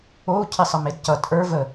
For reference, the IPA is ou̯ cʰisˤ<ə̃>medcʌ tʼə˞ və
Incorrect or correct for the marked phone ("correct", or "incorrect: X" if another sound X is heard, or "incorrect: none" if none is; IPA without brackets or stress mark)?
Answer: incorrect: ə